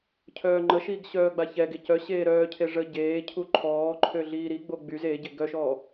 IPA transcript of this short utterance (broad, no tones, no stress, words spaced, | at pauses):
cʰœːŋ͡ǃəʃiɡ ɕœːɡ͡baçɛɡe cœ ɕeːɾœːcʰe ʐə ɟeːcʰu ǃʰɔːǃʰø ɮiːɾiɡ͡bo ɡ͡byz eɟe ɡœʃɔː